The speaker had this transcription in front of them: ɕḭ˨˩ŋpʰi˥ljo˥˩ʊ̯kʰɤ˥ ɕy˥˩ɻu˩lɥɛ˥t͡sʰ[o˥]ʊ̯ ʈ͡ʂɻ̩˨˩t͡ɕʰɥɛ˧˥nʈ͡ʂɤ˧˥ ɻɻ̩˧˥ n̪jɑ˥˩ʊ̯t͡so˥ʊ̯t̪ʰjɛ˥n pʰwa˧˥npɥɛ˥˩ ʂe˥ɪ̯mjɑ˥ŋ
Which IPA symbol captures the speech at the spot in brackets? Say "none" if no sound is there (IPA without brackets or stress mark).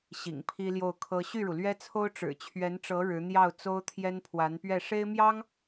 o˥